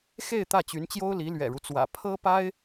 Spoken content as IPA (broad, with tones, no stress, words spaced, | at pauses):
xe˥˧ɪ̯ t̪ä˥˩t͡ɕy˧˥nt͡ɕjo˥ʊ̯li˧˥ lɥɛ̰˨˩ɻu˦t͡swä̰˨˩ pʰɤ˥pa˥ɪ̯